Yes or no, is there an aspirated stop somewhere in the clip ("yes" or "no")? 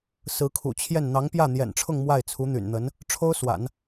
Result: yes